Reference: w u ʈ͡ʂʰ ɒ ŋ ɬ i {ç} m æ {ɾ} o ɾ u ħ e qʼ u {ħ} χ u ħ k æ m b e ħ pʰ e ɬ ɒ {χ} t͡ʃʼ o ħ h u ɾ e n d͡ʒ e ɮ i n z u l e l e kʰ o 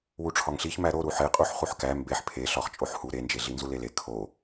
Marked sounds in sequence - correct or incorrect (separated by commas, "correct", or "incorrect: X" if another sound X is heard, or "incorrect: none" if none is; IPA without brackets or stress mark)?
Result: correct, correct, correct, correct